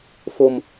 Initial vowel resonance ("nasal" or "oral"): oral